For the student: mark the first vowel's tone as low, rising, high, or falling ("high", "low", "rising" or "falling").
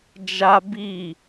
high